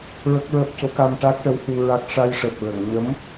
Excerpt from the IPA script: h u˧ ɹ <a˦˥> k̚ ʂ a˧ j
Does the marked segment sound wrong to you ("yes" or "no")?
no